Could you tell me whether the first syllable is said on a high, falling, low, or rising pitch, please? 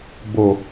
low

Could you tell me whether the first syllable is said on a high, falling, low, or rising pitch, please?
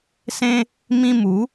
high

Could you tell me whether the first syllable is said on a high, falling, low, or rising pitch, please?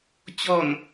low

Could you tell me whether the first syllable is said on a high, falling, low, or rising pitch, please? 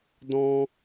high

